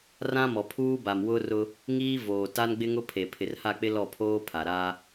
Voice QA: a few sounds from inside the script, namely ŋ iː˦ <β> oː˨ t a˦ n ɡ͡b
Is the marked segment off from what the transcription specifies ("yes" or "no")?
yes